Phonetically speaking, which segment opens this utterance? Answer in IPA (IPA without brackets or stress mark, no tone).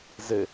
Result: z